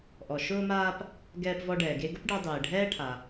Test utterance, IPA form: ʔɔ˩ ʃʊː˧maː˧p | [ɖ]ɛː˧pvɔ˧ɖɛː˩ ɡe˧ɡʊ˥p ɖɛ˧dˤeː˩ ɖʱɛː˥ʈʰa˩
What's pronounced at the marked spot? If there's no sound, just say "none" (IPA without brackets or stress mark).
ɡ